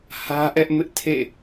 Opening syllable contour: high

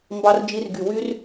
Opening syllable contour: high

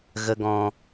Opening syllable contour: low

